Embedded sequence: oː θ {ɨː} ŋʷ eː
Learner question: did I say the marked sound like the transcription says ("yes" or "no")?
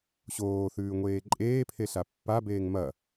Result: no